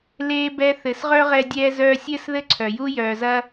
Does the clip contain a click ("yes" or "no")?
yes